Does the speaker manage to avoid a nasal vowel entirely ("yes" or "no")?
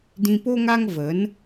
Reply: no